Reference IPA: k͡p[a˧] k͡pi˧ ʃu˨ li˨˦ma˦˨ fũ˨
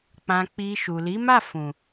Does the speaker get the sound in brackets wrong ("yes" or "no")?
yes